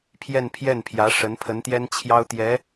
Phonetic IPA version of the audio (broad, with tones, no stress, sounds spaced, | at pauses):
pʰ j ɛ˥˧ n pʰ j ɛ˥˩ n pʰ j ä˧˥ ʂ ə˧˥ n pʰ ə˧˥ n t̪ j ɛ˥ n t͡ɕʰ j ɑ˥ ʊ̯ t̪ j ɛ˧˥